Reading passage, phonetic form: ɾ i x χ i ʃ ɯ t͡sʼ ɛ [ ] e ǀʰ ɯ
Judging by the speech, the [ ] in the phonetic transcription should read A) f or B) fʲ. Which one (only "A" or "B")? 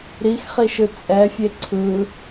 B